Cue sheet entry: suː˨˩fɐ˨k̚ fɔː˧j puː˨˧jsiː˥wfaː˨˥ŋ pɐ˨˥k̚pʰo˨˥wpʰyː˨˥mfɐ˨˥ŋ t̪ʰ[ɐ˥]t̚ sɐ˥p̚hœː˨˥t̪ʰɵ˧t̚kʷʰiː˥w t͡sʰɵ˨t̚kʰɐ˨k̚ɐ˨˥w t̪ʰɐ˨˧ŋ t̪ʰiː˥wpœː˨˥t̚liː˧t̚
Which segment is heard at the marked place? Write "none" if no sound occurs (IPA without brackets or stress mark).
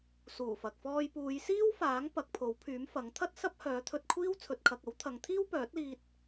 ɐ˥